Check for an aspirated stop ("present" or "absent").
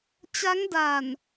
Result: absent